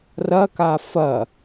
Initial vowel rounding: unrounded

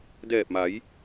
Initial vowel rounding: unrounded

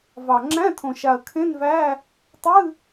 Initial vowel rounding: unrounded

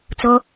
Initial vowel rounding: rounded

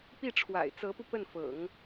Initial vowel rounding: unrounded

